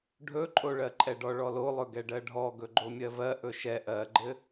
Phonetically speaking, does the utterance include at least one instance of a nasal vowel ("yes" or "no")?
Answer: no